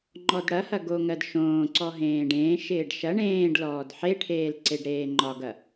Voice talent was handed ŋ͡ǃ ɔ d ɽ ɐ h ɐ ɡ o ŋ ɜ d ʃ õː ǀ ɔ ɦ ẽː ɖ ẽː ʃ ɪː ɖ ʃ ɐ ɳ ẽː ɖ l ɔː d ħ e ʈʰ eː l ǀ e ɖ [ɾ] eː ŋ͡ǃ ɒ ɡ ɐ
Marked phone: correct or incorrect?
correct